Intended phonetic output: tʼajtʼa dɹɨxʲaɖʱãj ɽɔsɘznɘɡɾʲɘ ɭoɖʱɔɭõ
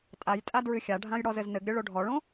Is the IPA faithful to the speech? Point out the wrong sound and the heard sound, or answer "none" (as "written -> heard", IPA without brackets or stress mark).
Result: s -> z